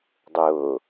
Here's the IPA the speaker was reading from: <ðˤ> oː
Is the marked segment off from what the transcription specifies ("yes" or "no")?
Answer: yes